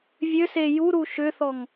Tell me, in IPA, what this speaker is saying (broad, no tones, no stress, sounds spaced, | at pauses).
vʲ ø s e j u ɾ u ʃ ʏ θ ɔ ŋ